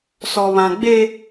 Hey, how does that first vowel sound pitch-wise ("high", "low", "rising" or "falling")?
high